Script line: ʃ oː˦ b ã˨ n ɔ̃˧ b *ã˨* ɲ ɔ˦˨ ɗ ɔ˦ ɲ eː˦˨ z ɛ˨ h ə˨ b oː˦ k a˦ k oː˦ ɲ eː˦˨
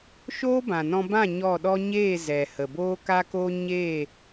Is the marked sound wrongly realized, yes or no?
yes